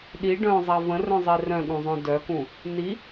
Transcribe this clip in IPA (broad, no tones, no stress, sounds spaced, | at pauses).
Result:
ɗ i ɖ œ̃ zˤ a v ə̃ r œ̃ zˤ i r œ̃ ɠ ũ zˤ œ̃ d œ k ũ | n i